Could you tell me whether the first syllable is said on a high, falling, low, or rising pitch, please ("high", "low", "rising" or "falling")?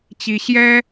high